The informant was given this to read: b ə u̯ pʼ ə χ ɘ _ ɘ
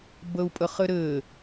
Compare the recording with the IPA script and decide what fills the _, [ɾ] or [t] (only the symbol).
ɾ